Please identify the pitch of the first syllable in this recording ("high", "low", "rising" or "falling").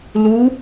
rising